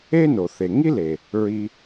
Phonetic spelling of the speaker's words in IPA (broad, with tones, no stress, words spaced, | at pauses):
e˥ no˩θe˩ ŋi˥le˩ | ɹi˧